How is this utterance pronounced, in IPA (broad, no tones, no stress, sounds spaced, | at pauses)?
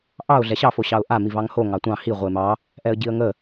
ʔ ɑ ʊ̯ ɮ ɛ ɕ ɑ f o ɕ ɑ ʊ̯ ʔ a m i v ɑ ŋ h o ŋ ɑ tʷ ɑ̃ h i ʁʷ ə ɪ̯ m ɑ | ʔ ɛ ə̯ ɟ i ə̯ ŋ ə